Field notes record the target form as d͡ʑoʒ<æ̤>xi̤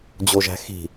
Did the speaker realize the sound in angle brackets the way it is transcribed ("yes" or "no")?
yes